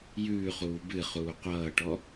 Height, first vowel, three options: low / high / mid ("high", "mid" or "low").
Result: high